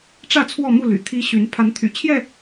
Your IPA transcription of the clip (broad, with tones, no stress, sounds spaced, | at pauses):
ʈ͡ʂ ä˥˨ t͡sʰ w ɔ˥˨ m u˥˨ l y̰˨˩ t̪ʰ i˦ ɕ y˨˦ n pʰ a˨˦ n t̪ʰ y̰˨˩ t͡ɕʰ j ɛ˥˨